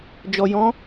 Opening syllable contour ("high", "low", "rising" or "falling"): low